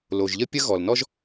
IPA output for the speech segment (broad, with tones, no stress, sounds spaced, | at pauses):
l o˩ ʒ ʎ ə˥ pʲ ə˥ ɣ ɔ˩ l n ɔ˥ ʒ